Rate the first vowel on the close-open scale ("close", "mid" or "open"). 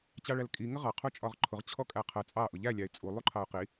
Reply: open